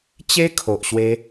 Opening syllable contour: high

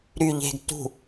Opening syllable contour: low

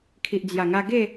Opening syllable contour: low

